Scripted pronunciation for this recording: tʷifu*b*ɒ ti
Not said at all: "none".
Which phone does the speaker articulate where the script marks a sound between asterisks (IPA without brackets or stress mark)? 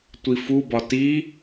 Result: b